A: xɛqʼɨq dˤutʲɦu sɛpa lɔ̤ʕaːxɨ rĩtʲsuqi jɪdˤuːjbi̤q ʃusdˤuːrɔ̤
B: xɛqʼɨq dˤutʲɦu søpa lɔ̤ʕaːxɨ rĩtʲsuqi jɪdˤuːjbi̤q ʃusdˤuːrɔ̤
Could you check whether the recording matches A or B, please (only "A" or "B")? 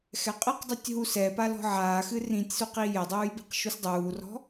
A